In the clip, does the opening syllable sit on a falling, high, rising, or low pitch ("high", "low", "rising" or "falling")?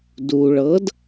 low